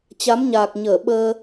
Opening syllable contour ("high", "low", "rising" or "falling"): rising